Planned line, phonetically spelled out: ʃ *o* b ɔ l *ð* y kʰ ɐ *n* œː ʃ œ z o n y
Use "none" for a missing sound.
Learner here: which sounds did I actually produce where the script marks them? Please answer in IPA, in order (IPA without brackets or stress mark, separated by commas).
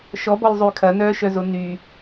ɔ, zˤ, n